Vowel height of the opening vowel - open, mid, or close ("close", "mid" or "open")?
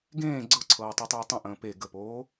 mid